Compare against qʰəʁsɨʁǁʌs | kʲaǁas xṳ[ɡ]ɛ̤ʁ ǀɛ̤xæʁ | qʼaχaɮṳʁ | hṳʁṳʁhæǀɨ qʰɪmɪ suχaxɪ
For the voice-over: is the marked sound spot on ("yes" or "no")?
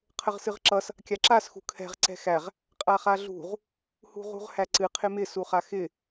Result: no